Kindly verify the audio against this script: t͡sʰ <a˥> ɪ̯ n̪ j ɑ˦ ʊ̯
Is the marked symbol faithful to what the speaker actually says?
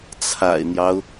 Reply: no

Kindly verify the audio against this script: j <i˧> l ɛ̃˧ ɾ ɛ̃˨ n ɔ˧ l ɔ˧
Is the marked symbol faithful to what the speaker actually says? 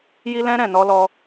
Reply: yes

